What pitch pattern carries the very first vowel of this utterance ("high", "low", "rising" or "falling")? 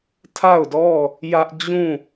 falling